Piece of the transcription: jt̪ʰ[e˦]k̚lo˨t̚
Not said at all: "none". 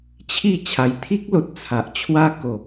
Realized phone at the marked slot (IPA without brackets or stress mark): i˦